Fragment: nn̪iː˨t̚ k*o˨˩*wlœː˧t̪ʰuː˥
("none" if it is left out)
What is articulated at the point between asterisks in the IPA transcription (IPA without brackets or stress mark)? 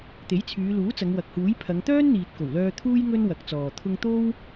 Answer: o˨˩